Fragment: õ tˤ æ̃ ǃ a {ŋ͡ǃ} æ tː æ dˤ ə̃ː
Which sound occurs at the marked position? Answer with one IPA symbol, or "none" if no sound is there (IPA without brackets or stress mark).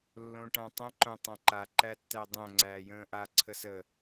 ǃ